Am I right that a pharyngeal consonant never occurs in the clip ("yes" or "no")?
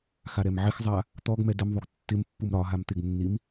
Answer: no